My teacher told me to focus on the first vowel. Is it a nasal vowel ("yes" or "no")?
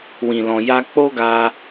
yes